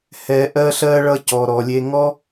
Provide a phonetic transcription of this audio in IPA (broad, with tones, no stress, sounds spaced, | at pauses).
h ɛː˨ ʔ ɜ˧ ɬ ɜ˧ ɭ ʌ˧ c ɔ˨ ɾ ɔ˨ lʲ e˧ ŋ ɔ˦